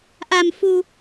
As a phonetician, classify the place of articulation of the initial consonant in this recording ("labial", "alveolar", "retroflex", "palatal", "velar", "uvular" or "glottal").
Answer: glottal